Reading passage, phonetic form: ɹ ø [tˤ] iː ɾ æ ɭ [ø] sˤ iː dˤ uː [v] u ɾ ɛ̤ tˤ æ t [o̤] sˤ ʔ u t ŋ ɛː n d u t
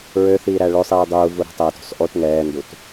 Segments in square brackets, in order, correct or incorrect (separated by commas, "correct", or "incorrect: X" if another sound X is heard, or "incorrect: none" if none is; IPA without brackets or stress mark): incorrect: θ, correct, correct, correct